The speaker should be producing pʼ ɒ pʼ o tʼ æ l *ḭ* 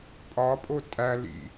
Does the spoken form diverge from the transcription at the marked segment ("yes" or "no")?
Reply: no